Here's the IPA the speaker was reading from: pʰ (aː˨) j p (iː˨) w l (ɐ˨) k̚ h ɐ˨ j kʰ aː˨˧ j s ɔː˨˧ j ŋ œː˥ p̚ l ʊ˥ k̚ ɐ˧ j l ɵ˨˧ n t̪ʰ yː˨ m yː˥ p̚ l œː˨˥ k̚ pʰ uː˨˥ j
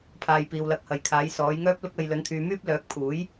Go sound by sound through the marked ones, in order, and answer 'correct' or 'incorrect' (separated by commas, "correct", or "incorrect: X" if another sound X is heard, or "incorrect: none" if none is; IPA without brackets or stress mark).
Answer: correct, correct, correct